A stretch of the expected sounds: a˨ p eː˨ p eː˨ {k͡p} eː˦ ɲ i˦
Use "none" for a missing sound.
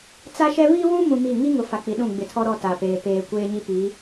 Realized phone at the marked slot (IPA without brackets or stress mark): kʷ